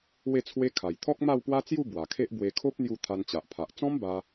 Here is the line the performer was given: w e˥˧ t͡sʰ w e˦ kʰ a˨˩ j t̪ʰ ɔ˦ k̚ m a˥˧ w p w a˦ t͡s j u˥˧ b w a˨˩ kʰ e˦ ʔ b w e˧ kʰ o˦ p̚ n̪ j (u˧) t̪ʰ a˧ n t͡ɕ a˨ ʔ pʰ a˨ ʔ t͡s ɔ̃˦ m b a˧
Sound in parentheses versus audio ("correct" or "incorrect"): correct